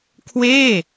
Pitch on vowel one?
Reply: falling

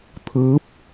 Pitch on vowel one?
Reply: rising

